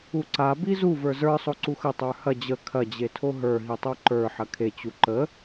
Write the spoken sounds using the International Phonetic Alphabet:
uǀa bizu və˞zə˞ sˤoǀuxə tˤə˞hɐ d͡ʑə kʰɐ d͡ʑetʰoɦə˞ ɦitˤoǃə˞ ħɐkʰe t͡ɕuǃə

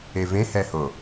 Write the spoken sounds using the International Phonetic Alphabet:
evẽhɛho

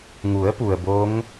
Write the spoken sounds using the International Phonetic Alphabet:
ŋu˩˧ə̯pu˩ə̯ bo˧˥ŋ

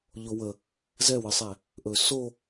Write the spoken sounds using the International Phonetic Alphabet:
ʎowə | zɛwəsˤæ | ʔɵ so

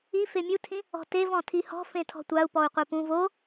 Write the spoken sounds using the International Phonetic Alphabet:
i femʲutʰĩ | ɔ̤tev ɔ̃tʰihɔ̤ fẽtʰɔ̤tʷau̯ pɔu̯qʷepũv o

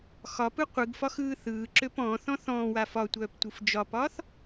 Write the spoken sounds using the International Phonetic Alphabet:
xɒpɯ qʷɯɡfɒx ɯːθɯːǁøp ɔ̃ːθɔ̃ θɔ̃ːwa fɒ tʷœːptʷɯfd͡ʒɒpɒːθ

